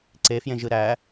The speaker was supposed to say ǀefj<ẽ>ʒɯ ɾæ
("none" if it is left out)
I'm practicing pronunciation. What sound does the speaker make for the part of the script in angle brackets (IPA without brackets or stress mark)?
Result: ẽ